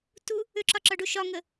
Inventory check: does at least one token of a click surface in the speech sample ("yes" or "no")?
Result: yes